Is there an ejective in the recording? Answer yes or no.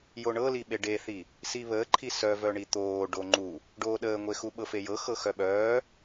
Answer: no